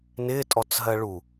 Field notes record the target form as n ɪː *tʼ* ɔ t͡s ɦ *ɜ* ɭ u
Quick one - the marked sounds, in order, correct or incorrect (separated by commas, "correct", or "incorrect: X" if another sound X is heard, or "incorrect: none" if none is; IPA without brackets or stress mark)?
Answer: correct, correct